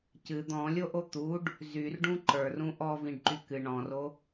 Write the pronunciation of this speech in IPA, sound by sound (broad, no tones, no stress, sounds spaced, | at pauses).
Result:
c ɨ d̪ ɔ̃ lʲ o ʔ o t̪ u ɖ | z y r ɖ ũ ǃ ə˞ r ũ ʔ ɔ v ĩ ɖ ǃ y k ɨ ɳ ɔ̃ r o